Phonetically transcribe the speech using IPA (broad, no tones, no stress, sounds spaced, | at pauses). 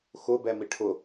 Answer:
x ʊ b ɛ m i ʈʰ ʊ